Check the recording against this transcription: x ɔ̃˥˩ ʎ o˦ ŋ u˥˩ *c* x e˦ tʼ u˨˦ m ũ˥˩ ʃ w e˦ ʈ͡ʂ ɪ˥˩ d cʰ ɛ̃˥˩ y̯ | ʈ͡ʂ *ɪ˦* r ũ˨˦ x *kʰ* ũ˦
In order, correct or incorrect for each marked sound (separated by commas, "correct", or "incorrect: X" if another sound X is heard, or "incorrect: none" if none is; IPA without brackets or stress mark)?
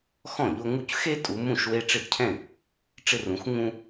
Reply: correct, correct, incorrect: ŋ